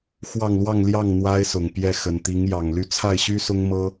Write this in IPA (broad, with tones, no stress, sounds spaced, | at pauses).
x w ɑ˥˧ ŋ l w ɑ˥˧ ŋ l j ɑ˥˩ ŋ n̪ w a˥ ɪ̯ s ʊ˨˩ ŋ p j ɛ˥˩ x ə˨˩ n t̪ i˧˥ ŋ j ɑ˨˩ ŋ l y˥˧ t͡sʰ a˥˩ ɪ̯ ɕ y˥ s ʊ˥ ŋ m ɤ˥